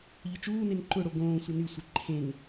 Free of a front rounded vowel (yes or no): no